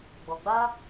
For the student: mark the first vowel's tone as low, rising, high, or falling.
low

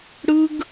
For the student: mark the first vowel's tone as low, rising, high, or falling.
high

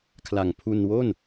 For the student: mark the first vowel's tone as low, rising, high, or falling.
low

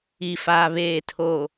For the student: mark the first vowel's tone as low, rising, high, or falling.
low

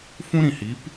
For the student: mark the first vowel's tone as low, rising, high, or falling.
high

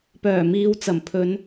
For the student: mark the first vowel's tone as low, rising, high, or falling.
low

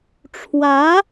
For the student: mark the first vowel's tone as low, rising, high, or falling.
rising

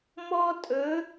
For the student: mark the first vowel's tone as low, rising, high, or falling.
high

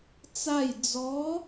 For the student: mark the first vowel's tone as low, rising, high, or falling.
falling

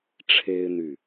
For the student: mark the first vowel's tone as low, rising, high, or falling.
high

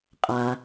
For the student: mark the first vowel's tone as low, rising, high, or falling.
low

